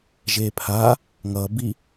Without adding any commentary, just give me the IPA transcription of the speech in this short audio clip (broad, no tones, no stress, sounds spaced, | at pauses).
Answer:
ʒ e pʰ a | ŋ ʌ b i